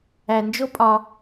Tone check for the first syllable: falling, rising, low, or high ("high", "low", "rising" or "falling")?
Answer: low